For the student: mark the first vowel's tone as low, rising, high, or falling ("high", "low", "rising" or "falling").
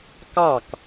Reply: falling